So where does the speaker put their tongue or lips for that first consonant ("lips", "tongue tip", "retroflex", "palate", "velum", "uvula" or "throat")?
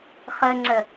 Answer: uvula